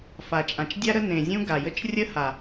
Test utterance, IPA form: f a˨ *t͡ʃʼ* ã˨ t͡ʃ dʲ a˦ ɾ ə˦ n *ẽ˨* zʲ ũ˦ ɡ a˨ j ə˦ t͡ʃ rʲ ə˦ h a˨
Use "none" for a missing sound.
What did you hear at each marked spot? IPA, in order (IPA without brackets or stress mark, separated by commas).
t͡ʃʼ, ẽ˨